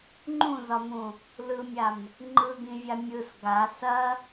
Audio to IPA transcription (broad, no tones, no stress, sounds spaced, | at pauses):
ŋ͡ǃ ũ z ɒ m ũ | l ɯ mʲ a m | ŋ͡ǃ ɯ ɡ ĩ vʲ a mʲ ɯ s ɡ a s ɐ